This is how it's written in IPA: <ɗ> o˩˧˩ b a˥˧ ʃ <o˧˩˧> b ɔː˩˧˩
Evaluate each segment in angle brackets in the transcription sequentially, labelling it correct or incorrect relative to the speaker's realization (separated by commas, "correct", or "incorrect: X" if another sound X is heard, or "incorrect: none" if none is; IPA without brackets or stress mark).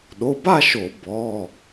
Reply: correct, correct